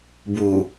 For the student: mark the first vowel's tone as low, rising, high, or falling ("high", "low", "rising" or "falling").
low